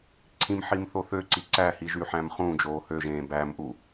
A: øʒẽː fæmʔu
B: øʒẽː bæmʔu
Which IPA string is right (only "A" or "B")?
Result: B